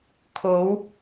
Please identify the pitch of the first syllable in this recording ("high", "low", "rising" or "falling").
rising